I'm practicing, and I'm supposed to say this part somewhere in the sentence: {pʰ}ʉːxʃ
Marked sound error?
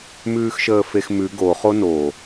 yes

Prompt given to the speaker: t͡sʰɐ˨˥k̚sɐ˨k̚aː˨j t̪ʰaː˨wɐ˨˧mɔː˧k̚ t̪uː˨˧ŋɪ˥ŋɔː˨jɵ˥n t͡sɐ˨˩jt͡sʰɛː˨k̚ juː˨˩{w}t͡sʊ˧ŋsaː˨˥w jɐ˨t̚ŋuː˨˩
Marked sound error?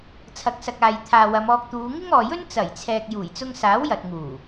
yes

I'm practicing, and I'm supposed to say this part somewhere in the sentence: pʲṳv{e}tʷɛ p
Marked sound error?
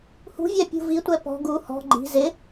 yes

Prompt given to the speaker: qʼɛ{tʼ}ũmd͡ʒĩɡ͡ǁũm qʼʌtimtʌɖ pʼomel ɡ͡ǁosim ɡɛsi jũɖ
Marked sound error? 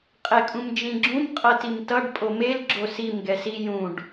yes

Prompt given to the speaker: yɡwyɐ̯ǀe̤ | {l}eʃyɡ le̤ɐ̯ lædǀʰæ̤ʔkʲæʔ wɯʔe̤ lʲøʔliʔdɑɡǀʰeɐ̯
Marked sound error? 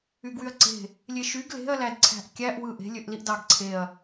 yes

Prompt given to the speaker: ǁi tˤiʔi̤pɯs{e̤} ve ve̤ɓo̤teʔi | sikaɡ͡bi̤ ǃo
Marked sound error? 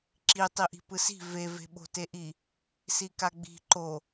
yes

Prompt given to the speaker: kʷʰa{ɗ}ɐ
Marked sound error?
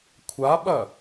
yes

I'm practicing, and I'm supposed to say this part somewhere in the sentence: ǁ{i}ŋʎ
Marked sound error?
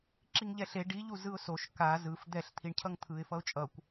no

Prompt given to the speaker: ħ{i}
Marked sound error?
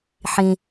yes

